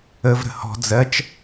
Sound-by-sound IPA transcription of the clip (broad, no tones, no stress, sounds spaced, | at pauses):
ə v ɾ ə̤ h ɔ̤ d͡z ɜ t͡ʃ